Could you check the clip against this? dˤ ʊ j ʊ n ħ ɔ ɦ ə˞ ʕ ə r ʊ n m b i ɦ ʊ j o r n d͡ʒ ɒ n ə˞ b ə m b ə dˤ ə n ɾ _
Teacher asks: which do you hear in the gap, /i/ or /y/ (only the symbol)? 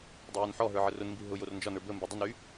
y